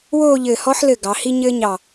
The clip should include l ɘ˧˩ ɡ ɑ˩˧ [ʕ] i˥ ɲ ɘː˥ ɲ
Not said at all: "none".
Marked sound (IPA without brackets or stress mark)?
h